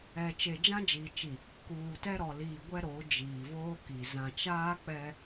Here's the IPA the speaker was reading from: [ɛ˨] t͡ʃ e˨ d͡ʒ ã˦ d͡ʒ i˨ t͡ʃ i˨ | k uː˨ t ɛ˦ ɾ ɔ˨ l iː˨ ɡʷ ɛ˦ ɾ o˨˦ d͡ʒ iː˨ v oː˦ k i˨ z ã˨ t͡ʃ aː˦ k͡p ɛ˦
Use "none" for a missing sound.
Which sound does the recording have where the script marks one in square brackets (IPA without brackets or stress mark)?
ɛ˨